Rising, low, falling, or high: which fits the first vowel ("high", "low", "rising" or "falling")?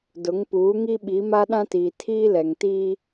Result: rising